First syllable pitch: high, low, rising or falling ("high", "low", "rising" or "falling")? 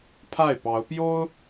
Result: falling